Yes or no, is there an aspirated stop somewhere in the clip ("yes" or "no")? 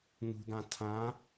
yes